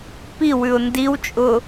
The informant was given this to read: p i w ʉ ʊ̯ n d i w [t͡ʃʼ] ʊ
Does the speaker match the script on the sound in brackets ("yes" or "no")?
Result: yes